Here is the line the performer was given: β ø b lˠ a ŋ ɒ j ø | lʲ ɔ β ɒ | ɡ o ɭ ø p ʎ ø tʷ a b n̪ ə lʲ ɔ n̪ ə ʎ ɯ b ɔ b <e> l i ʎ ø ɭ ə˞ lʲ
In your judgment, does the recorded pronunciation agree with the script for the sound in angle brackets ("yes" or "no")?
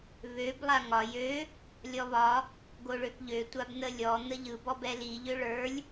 no